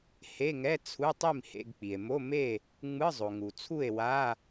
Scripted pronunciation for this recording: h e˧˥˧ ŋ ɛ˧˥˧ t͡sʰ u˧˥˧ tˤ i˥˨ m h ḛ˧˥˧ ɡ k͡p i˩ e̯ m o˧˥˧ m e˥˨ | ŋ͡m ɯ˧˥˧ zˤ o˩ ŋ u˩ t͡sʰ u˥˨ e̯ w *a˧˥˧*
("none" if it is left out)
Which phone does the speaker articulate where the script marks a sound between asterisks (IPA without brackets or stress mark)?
a˧˥˧